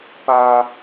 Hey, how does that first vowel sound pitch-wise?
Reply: high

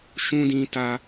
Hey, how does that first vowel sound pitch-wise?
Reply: high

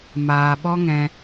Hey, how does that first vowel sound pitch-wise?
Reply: low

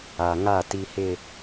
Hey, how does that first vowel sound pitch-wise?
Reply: low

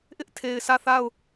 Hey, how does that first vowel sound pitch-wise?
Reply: high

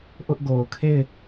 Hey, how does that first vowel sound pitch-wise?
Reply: high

